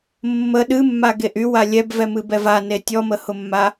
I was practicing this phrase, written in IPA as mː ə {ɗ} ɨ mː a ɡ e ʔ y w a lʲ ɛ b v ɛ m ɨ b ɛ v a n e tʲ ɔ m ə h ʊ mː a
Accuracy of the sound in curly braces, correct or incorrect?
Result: correct